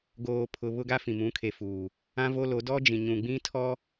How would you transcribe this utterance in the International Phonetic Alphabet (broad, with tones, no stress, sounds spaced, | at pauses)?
ɡ oː˨ pʰ ʊ˨ β ʊ˦ ɡ a˦ f ĩ˨ m ũ˨˦ kʰ e˨ f uː˨ | ã˦ v o˦ l o˨˦ d ɔ˦ d͡ʒ ĩ˨ ɲ ũ˨ ɡ͡b ĩ˦ tʰ ɔ˦